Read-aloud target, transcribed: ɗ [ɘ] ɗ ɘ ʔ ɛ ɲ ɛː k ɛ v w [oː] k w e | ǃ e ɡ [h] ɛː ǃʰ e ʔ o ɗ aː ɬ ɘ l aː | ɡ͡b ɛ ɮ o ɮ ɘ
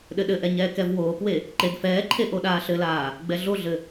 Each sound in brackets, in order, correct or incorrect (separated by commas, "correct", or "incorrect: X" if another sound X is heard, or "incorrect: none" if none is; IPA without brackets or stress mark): correct, correct, incorrect: f